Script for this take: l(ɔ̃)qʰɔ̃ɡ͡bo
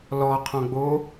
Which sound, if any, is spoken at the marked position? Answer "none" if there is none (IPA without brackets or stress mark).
ɔ